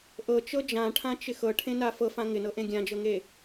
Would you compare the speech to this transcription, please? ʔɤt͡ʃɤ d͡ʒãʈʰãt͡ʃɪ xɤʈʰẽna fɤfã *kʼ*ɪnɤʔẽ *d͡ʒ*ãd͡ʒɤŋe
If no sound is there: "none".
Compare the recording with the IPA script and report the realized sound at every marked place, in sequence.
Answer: ŋ, ɡʲ

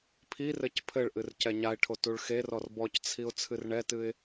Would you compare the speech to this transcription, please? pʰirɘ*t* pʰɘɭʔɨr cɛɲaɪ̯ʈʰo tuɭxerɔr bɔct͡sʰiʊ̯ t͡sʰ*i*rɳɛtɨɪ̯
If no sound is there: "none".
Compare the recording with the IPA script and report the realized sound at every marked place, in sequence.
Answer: c, ɨ

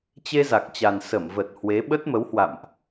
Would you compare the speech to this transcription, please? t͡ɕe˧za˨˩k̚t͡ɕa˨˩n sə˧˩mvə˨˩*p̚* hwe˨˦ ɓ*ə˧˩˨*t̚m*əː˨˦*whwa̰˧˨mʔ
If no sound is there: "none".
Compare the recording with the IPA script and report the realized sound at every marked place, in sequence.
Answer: t̚, ə˦˥, ə˨˦

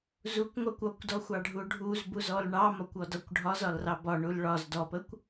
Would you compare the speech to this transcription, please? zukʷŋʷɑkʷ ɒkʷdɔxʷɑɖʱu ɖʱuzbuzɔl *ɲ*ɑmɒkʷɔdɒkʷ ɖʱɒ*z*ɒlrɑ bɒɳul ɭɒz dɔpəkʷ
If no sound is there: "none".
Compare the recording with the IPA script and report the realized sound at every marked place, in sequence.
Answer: ɳ, z

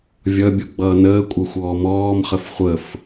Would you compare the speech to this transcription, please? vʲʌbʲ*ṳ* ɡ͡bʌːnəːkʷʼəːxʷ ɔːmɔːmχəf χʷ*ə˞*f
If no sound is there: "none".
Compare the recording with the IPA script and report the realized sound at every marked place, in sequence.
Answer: u, ə

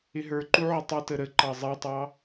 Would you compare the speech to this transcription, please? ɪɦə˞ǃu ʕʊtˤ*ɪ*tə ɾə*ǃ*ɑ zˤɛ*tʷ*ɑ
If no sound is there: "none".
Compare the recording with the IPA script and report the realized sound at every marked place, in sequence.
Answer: ɪ, ǃ, tˤ

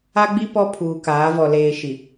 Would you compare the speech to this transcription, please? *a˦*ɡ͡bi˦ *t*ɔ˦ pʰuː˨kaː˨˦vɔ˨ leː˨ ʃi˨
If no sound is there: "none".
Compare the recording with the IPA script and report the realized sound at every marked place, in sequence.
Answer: a˦, p

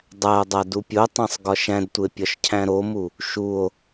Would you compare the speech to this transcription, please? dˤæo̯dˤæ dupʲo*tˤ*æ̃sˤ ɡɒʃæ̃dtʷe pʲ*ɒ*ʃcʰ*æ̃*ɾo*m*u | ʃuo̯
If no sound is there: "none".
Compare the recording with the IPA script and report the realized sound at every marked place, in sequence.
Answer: tˤ, ɒ, æ̃, m

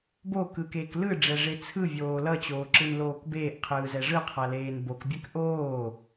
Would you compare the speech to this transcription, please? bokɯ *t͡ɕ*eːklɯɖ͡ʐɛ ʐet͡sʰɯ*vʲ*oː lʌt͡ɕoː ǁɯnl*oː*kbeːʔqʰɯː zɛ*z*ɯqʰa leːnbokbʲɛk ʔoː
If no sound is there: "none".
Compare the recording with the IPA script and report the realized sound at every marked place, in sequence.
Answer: k, vʲ, oː, ʐ

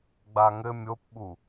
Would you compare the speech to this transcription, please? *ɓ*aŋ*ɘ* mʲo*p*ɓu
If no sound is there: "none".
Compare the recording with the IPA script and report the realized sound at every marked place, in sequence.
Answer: ɡ͡b, ɘ, p

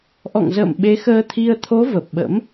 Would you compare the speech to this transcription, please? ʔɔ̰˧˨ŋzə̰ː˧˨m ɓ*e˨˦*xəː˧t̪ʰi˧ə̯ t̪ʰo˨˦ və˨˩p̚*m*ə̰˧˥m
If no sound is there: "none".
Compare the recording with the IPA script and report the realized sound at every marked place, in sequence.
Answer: e˨˦, ɓ

